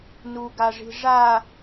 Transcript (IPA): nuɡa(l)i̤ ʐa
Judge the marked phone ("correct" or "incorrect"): incorrect